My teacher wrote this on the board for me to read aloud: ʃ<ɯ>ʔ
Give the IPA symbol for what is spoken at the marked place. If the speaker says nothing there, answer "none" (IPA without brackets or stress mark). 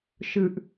ɯ